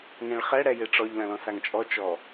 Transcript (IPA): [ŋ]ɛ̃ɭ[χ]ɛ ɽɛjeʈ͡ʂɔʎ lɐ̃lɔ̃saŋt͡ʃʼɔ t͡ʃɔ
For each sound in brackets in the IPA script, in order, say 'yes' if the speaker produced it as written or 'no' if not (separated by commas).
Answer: yes, yes